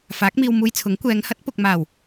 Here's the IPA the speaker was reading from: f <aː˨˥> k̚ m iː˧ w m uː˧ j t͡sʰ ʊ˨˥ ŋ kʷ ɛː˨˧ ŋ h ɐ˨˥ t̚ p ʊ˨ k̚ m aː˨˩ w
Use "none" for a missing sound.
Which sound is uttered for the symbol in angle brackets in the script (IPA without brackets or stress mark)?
aː˨˥